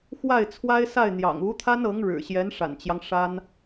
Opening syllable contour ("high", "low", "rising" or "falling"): falling